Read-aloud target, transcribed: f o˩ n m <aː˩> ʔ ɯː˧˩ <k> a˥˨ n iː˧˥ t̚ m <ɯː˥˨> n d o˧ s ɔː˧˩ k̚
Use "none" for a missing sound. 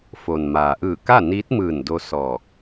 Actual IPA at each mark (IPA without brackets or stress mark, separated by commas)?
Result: aː˩, k, ɯː˧˩